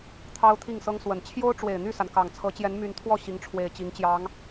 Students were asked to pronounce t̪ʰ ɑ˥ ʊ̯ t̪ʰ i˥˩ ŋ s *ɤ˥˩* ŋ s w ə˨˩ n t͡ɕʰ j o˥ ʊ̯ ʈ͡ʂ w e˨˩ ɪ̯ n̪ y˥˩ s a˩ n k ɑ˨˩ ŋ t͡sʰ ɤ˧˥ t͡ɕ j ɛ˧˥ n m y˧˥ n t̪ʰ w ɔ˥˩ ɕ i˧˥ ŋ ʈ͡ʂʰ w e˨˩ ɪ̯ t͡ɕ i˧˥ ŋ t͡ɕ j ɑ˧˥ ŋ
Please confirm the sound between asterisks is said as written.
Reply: no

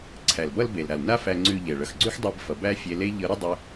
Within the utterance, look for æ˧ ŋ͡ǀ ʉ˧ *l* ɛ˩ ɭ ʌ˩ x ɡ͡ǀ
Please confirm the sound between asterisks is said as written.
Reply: no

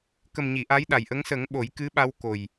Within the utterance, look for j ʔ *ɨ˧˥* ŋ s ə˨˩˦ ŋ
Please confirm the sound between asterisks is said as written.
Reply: no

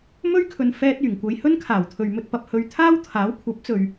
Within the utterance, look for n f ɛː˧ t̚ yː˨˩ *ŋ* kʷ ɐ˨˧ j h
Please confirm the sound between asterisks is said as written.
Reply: yes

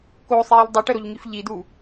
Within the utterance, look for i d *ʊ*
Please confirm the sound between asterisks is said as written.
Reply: no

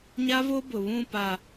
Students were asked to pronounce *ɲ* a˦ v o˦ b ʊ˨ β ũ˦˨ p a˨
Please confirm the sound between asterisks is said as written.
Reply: yes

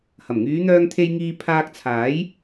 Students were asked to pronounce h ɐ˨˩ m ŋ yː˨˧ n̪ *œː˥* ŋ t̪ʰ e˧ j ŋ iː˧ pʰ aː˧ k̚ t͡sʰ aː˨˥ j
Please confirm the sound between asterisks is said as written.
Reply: no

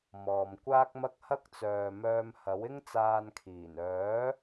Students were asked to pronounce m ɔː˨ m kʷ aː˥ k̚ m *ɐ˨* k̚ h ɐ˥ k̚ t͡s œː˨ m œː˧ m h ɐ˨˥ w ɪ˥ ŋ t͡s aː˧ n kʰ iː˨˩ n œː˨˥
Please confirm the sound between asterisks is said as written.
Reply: no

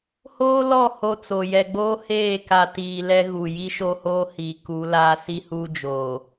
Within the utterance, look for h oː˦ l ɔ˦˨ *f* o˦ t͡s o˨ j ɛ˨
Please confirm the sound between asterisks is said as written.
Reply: no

